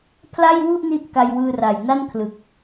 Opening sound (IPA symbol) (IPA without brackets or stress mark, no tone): pʰ